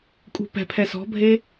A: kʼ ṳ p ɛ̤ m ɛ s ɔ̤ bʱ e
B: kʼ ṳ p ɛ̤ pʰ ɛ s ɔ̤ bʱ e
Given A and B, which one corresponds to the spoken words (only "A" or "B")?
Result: B